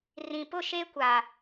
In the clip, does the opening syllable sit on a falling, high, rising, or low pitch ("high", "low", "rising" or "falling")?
low